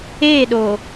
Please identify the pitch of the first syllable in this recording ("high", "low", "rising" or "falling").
falling